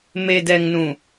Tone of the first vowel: low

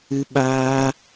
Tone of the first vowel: high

